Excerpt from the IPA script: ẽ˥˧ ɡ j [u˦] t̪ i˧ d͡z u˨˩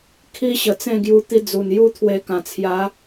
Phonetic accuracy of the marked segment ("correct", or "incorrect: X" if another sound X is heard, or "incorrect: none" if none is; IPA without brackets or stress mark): incorrect: u˧